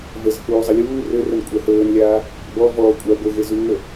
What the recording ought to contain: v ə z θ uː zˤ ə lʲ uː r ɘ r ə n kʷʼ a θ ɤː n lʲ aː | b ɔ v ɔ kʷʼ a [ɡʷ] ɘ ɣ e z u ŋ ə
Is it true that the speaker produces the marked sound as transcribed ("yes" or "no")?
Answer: yes